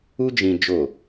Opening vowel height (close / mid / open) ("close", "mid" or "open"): close